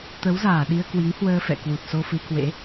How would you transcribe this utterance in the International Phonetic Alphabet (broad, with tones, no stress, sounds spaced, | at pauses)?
t̪ ə˨˦ w z aː˧˩ ɗ i˧ ə̯ k w i˨˦ ŋ h w əː˧ f ɛ̰˧˨ k w u˨˩ t̚ s o˧ f ɨ˧ k w ḛ˧˥